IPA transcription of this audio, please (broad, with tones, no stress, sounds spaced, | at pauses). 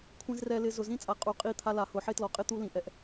kʷʰ ĩ˨ z r ɛ˨ l ɪ˨ z ʊ˨ z ĩ˦ t͡sʼ a˨ qʼ u˨ qʼ i˦˨ t̪ʰ a˦ l a˨ h ʊ˨ ħ e˦ t l ɔ˨ qʼ ɪ˦ t̪ u˦ l ĩ˨ ʔ ɛ˦ ʔ